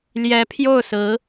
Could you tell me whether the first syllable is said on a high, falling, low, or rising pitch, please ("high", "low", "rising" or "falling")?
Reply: rising